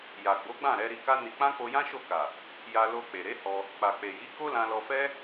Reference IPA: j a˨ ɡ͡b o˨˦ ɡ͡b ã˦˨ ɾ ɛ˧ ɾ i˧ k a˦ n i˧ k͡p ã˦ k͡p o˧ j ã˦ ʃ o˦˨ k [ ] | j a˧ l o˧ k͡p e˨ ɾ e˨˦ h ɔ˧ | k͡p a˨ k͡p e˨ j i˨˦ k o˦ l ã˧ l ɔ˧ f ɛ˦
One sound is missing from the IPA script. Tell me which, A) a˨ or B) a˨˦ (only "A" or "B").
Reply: A